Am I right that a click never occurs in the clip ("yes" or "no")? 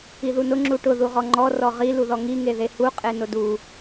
no